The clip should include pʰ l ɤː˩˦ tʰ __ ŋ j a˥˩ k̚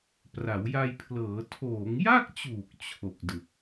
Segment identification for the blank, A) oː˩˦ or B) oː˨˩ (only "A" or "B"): A